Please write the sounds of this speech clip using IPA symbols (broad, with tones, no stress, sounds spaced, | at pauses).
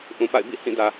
ʔ ũ˨ p a̰˦˨ ɪ̯ b ḭ˦˨ h ĩ˦˨ d ä˨